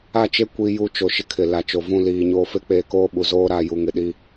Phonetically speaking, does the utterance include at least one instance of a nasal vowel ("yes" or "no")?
yes